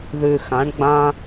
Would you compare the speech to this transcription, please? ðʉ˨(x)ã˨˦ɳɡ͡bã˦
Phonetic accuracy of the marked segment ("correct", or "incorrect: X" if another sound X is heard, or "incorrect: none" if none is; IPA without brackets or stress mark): correct